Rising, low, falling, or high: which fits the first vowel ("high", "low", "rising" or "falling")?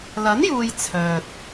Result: rising